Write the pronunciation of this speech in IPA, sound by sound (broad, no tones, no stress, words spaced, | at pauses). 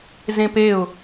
zẽpeʊ̯